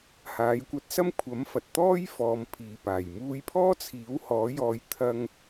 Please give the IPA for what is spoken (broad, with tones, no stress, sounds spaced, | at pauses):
h aː˨˥ j kʷ ɐ˧ t̚ s ɐ˥ m kʷʰ ɐ˨˥ m f ɐ˨ t̚ t̪ ɔː˥ j f ɔː˨˧ m pʰ iː˨ p aː˨˩ j m uː˧ j pʰ ɔː˥ t͡sʰ iː˨˥ w h ɔː˨˥ j ɔː˧ j t̪ʰ ɐ˥ ŋ